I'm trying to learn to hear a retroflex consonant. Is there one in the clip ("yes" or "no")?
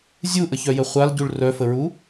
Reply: yes